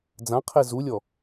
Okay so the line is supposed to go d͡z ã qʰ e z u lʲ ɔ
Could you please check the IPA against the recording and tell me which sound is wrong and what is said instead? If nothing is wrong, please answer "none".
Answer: none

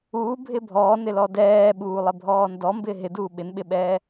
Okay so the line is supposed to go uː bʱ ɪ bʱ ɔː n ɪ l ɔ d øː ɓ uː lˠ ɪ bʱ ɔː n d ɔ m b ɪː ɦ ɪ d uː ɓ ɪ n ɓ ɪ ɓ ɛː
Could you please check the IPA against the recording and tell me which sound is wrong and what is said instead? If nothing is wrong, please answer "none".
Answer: øː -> ɛː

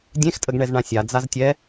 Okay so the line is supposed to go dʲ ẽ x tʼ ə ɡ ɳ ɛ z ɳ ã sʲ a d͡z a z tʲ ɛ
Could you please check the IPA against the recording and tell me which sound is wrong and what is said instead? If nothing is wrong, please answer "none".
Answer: none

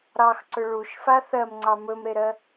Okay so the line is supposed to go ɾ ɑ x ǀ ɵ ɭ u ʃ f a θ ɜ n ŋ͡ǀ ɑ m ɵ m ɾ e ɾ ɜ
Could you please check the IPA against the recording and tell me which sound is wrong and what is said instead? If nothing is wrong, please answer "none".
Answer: n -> m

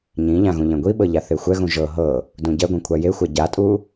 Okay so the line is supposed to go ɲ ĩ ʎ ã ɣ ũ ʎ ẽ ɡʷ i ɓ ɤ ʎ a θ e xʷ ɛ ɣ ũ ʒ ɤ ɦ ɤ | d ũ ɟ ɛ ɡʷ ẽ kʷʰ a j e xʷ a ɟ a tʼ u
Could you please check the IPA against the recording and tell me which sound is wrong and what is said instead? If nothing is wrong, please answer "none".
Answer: none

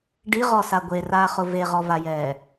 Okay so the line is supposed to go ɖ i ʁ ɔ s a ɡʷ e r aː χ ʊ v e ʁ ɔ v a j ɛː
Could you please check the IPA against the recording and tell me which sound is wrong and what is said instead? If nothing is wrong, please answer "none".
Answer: none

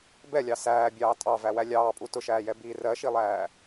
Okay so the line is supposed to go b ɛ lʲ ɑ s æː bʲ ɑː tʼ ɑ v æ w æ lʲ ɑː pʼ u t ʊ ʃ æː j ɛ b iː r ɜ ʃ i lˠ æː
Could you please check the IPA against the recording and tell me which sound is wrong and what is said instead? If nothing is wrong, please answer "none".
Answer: none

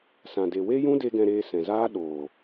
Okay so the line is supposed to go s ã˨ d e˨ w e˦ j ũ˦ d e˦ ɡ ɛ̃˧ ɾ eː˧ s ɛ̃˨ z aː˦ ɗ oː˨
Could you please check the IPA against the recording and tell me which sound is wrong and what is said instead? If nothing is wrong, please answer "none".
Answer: none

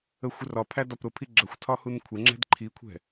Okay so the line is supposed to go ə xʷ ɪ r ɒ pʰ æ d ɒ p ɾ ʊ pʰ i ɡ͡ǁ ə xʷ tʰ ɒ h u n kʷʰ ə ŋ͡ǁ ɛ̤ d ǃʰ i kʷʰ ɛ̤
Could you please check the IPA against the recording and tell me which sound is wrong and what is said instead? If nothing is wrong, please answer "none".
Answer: none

